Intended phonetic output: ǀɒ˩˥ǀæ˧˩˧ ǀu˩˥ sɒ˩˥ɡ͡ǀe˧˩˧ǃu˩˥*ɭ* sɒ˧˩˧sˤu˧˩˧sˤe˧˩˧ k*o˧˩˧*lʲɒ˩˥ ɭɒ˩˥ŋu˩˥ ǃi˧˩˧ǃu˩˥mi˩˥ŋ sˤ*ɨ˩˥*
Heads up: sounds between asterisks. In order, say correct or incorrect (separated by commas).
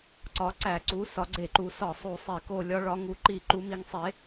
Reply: incorrect, correct, incorrect